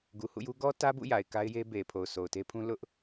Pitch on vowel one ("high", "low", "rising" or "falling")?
low